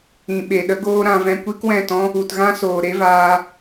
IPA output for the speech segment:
ĩ˨ ɓ e˨ ɗ ə˦ ɡ oː˦ ɾ ã˧ v ɛ̃˧ kʷ i˦ k w ɛ̃˦˨ t ɔ̃˦ | u˨ t ɣ ã˦ s oː˨ ɾ e˦ v aː˧

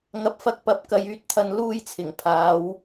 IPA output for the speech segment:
ŋ ɐ˨˥ p̚ f ɐ˧ k̚ p ɐ˨˥ p̚ k ɐ˨˧ j yː˧ t̚ t̪ʰ ɐ˧ n l uː˥ j t͡sʰ ɪ˨˩ ŋ pʰ aː˨˧ w

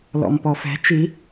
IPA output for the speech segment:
l ɔ̰ m p ɔ f ɛ̤ t͡ʃ i

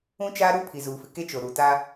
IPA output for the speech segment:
ũ˦ t͡ʃ aː˦ ɾ u˦ pʰ i˨ z uː˨ f ɪ˨ k e˦ t͡ʃ o˨ ɾ u˨ t a˦

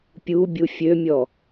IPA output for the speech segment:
pʲ u bʲ u fʲ ø mʲ ɔ

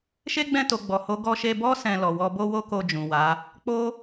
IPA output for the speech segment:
ʃ e˦ ɡ͡b ɛ̃˦˨ t o˨ ɡ͡b ɔ˨ h o˨˦ ɡ ɔ˧ ʃ e˧ b ɔ˦ s ɛ̃˧ l ɔ˨ w ɔ˧ b o˦ w o˦ k o˧ d͡ʒ ũ˨ w a˨˦ | k͡p o˦

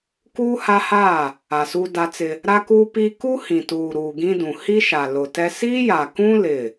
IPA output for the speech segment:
k uː˦ h a˦ h aː˦˨ | a˨ s u˦ d a˦ t͡s ɪ˦ | ɾ a˦ k uː˦ p iː˦ k u˦ h ĩ˨ t uː˨ ɾ uː˨ ɡ ĩ˦ d ũ˨ h i˦ ʃ a˨ l ʊ˨ t ɛ˦ s i˦ j a˨ k ũ˦ l ɪ˦˨

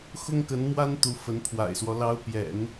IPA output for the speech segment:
x ʊ˥ ŋ k ə˧˥ n m w a˥ n t̪ u˧˥ f ə˧˥ n pʰ w a̰˨˩ ɪ̯ s w ɔ˦ l ɑ˧˥ ʊ̯ p j ɛ̰˨˩˦ n

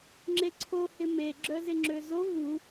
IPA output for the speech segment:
ŋ͡ǁ e ǀʰ o h ɪ m e ɡ͡ǁ œ z ɪ ŋ͡ǁ ø z o v u

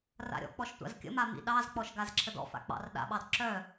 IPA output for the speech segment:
r a̰ ɾʲ ɔ̰ k͡p ɔ ʃ tʷ a̰ z kʲ ə̰ m a m ḭ ɗ ɑ z k͡p ɔ ʃ ɡ a z ǁʰ ə d ɔ̰ f a̰ k͡p ɑ̰ r ɗ a̰ ɓ ɑ d ǁ œ

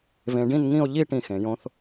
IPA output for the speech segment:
v ẽ˧ ɖ ĩ˥˧ n ŋ ĩ˥˧ o̯ ʎ i˥˧ ʈ ĩ˧˩ x ẽ˩˧ j õ˧ θ

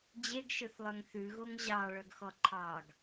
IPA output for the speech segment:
d͡ʑ e ɡ ʃ ɵ θ lˠ œ ŋ θ ʉ ɣ o ŋ ʑ ɑ ɭ œ ɡ x ɔ ǃʰ ɑ ɡ

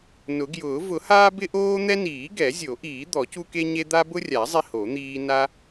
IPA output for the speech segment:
n ʊ˨˩˦ ɡ j ʊː˨˩˦ v ʊ˨˩˦ h aː˦ b ɪ˦ ʔ oː˦ n̪ ɛ˦ n iː˨˩˦ ɡ ɛ˨˩˦ zʲ o˨˩˦ ʔ iː˨˩˦ d̪ ɔ˨˩˦ c u˦ k e˦ ɲ e˦ d̪ a˦ b ʊ˦ rʲ a˨˩˦ zˤ i˦ h o˨˩˦ n̪ iː˦ n a˦

